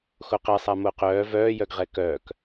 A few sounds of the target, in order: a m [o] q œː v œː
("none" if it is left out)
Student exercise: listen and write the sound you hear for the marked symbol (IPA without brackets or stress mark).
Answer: o